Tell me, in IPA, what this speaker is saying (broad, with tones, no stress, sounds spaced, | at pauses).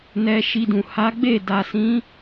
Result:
n ɛ˧ ʃ i˧ d ũ˨ h a˨˦ ɡ͡b e˦˨ d a˨ s ĩ˨˦